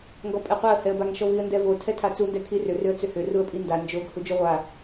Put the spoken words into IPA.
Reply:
ŋ ɡ ɔ pʼ ɛ qʷ a ə̯ h ɛ ə̯ b a ŋ ʃ ɔ v i ə̯ n d ɛ v o tʰ ɛ tʰ a t͡s u n d ɛ kʰ i r ʏ r ʏ ə̯ t͡s ʏ h ʏ r u ə̯ pʼ i n d a n d͡ʒ o ɡ h u d͡ʒ u ʁʷ a

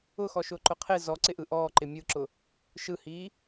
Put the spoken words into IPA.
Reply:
ʊ x ɔ ʃ ʊː ǃ ʊ qʰ ɪ z ɔ ǀ ɪ ʔ ɯ ʔ ɔː ǃ ɪ mʲ ɯ ǁ ʊ | ʃ ɯ h iː

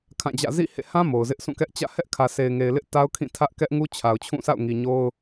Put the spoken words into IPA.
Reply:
kʰ ã˦˨ d͡ʑ ä̰˦˨ z ḭ˦˨ h ḛ˦˨ h ã˦ m o˨ ʊ̯ z ɪ˦ ʔ sʰ ũ˦˨ k ɛ˦ ʔ t͡ɕ ä̰˦˨ h ɛ˦ ʔ kʰ ä˨ s e˨ ɪ̯ ŋ e˨ ɪ̯ l ɪ˦ ʔ t a˦ ʊ̯ kʰ ĩ˦˨ tʰ ä˦ ʔ k ɛ˦ ʔ ŋ u˦ t͡ɕʰ a˨ ʊ̯ t͡ɕʰ ũ˦˨ s a̰˦˨ ʊ̯ ŋ i˨ ɲ o˦ ʊ̯

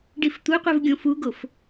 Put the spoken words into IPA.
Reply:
ɖ i f t̪ u qʷ ɛ v ɡʲ õ f u ɡ o f

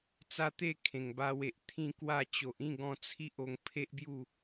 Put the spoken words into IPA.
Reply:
t͡s a˦ t̪ e˥˧ kʰ ẽ˨˩ ŋ b a˧ w e˨ ʔ t̪ʰ ĩ˥˧ k w a˥˧ t͡ɕ o˨ ʔ ĩ˥˧ ɡ ɔ̃˧ t͡sʰ i˦ ʔ o˧ ŋ pʰ e˦ ʔ b j u˥˧

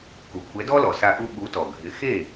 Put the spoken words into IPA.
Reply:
k u˩ kʷʰ ɛ˩˥ d ɔ˥ l ɔ˩ s a˧ ʔ u˧ ɓ u˩˥ t ɔ˩ ɡʱ ɪ˩˥ x e˥˩

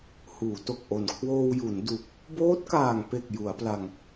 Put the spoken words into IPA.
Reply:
h uː˩˦ t o˨˩ k̚ ʔ o˨˩ n kʰ w oː˧ w j u˩˦ n d u˨˩ k̚ | b oː˦˥ t̚ k aː˨˩ ŋ p e˨˩ k̚ j u˩˦ a̯ p l a˧ ŋ

